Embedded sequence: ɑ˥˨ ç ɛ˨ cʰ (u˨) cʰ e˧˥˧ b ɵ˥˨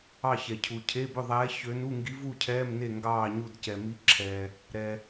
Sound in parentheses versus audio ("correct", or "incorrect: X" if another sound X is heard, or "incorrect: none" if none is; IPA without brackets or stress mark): correct